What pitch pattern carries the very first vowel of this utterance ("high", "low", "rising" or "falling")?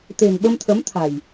low